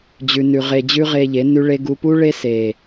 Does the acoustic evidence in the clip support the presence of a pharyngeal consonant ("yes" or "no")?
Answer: no